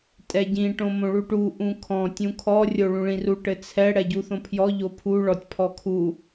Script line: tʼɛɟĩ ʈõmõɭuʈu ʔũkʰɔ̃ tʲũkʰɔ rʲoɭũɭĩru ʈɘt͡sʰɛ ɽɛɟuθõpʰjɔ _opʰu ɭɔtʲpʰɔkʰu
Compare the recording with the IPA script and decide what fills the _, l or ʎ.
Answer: ʎ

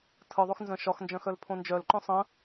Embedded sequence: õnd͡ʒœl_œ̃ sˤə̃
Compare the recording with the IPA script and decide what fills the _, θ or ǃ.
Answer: ǃ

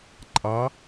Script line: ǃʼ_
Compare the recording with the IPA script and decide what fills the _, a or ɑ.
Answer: ɑ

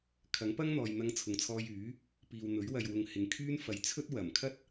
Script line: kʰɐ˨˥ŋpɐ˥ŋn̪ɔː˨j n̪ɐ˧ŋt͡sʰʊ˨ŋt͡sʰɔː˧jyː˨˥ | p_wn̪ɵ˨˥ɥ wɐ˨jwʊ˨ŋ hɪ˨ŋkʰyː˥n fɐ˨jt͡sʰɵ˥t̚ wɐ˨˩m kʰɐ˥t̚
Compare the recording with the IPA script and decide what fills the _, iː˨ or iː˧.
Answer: iː˨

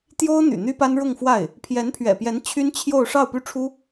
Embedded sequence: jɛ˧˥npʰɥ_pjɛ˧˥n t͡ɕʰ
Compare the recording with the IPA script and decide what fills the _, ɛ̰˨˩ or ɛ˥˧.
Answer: ɛ̰˨˩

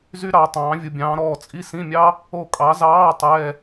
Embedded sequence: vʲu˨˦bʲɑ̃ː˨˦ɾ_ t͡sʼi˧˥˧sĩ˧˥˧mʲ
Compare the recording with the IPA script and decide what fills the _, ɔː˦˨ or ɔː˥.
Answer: ɔː˦˨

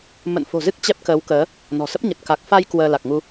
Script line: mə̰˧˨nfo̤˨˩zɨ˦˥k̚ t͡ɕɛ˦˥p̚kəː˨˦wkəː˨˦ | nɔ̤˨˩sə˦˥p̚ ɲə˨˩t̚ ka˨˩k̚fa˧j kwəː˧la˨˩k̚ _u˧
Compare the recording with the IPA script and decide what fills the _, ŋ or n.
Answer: ŋ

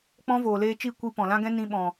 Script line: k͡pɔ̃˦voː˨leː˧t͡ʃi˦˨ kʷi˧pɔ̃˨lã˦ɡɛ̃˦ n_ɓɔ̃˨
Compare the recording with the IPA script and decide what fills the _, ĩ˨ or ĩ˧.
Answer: ĩ˧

